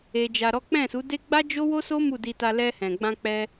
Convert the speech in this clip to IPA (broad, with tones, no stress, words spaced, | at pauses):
e˧ d͡ʒa˧ɾɔ˦ k͡pɛ̃˦˨su˨˦de˦ ɡ͡ba˦d͡ʒo˦wo˦so˦ mu˦˨di˧ta˧ lɛ˧hɛ̃˨ɡ͡bã˧k͡pɛ˧